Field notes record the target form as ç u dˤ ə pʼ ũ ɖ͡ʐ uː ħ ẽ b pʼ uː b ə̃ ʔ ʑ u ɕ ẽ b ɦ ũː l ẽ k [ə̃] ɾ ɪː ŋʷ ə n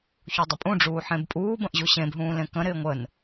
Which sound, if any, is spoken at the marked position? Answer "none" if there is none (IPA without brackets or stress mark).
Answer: ə̃